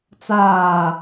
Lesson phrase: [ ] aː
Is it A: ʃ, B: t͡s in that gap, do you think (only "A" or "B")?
B